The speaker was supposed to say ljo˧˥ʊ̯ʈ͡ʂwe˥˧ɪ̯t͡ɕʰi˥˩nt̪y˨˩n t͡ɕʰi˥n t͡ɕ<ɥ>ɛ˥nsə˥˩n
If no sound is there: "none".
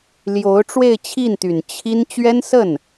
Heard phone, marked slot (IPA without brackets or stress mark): ɥ